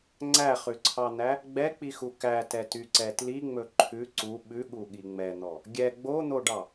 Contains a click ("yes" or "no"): yes